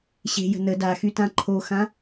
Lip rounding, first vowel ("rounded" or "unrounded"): unrounded